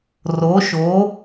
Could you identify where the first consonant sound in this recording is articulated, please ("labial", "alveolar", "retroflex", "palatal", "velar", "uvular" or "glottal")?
alveolar